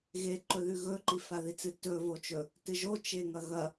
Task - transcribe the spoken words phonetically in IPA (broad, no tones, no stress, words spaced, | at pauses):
ɣe ǃɵðʉɣɵ ǃifaðit͡sɨ tɵ vot͡ʃɵ | tɨʒo t͡ʃeŋɐɣɐ